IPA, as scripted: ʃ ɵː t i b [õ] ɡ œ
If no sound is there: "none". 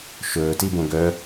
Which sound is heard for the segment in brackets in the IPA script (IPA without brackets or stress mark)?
õ